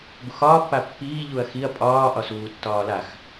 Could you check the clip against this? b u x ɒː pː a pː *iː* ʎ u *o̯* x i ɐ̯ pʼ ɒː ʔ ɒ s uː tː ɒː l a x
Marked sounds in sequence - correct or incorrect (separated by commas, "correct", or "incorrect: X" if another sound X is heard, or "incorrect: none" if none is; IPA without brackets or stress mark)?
correct, incorrect: ɐ̯